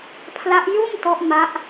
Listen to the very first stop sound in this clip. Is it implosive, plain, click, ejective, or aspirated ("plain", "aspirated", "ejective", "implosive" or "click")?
aspirated